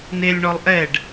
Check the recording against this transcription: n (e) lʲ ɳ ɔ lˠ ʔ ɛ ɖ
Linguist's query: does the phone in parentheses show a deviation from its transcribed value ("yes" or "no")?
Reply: no